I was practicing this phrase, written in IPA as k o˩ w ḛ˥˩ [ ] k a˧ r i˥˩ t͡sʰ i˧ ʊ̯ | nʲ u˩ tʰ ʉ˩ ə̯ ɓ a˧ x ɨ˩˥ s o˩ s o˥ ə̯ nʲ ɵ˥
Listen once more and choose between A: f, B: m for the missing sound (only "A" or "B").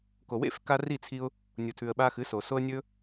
A